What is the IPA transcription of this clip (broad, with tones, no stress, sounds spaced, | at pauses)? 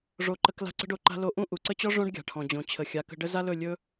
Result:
ʐ o˧ ǃ ə˧ k l a̤˧ ǀ ə̤˧ ɖ o˨ ǃ a̤˧ l o˧ ʔ ũ˦ ʔ u˨ ǀ ə˦ t͡ɕ ɔ˦ ʐ õ˦ ɖ ɡʲ a̤˨ ʈʰ ɔ̃˨ d͡ʑ õ˨ t͡ɕʰ ə˨ xʲ a˨˦ k ə̤˧ ɖ ə˦ z a˦ l ɵ˦˨ lʲ ɵ˦